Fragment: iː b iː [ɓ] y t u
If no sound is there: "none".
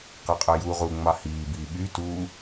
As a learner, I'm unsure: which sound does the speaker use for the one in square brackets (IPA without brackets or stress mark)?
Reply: ɓ